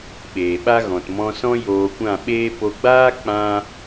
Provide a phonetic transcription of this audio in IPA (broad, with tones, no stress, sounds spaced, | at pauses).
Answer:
ɓ eː˨ ɓ a˦ ɣ ɔ̃˨ t m ɔ̃˧ s ɔ̃˦ j oː˧ kʷ ã˦˨ ɓ eː˦ p o˧ ɡ͡b aː˦ k͡p ã˦